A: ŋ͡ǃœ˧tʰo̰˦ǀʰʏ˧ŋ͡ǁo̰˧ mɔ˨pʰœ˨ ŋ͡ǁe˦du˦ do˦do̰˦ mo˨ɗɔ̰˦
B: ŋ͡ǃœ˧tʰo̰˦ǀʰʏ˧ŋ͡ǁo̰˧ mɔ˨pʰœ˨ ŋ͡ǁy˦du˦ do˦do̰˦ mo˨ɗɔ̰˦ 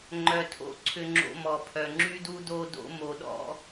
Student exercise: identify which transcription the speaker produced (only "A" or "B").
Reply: B